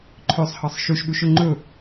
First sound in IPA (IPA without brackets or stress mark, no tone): ǃʰ